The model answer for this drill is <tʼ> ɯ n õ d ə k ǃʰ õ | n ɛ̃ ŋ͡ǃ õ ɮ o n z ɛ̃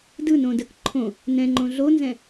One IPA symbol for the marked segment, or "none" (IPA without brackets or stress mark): d